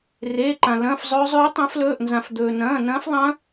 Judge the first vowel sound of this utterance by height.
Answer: mid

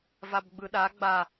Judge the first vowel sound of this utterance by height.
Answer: low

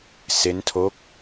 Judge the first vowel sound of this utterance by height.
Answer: mid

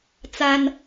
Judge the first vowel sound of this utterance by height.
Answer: low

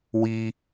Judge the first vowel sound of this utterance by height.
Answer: high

